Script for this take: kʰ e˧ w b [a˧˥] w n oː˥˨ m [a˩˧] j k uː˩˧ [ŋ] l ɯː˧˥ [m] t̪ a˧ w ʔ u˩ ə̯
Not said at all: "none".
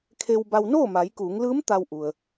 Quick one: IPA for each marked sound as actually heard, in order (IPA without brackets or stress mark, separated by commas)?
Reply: a˧, a˩˧, ŋ, m